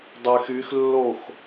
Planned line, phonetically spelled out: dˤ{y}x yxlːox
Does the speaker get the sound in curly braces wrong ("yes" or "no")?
no